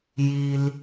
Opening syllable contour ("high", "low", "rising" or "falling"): low